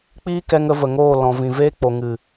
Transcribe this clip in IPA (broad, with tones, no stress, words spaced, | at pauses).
k͡piː˦kɛ˧ŋ ə˧və˨ŋoː˦˨ lɔ̃˨vĩ˨veː˦ k͡po˨ŋɨ˨